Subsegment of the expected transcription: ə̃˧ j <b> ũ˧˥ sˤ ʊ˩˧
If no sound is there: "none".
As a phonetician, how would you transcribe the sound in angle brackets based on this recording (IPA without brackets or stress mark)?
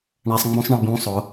b